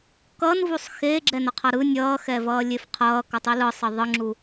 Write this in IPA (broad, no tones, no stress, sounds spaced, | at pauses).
k ʌ n v u sˤ x eː ɡ͡ǁ ɛ n ʌ qʰ ʌ ɾ ɯ nʲ ʌː x ɛ v ʌː lʲ e f qʰ ʌː k ʌ tˤ i l ɯ sˤ ʌ ðˤ ɯ ŋ͡ǁ u